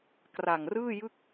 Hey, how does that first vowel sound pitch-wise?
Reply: low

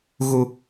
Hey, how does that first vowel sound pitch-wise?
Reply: low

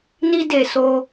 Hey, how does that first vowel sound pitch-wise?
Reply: high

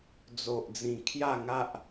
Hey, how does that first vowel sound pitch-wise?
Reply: low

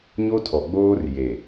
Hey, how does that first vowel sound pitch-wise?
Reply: high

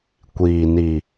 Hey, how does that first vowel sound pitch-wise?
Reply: low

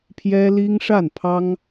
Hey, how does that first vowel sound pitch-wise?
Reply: high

